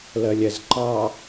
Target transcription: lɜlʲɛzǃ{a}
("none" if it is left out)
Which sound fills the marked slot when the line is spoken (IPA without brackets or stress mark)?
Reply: ɑ